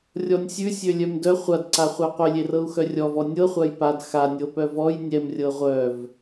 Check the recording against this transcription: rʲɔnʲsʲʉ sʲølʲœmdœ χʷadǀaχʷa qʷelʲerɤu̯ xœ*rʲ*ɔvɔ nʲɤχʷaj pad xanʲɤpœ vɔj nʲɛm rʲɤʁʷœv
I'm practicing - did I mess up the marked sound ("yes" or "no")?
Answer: no